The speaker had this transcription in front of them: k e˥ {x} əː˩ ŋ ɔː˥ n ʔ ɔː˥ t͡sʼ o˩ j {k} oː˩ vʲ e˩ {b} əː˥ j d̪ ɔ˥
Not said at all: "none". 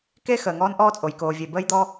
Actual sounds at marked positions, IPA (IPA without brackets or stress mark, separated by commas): x, k, b